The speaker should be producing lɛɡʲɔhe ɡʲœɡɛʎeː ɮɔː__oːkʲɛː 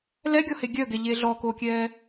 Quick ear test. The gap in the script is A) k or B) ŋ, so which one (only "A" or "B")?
A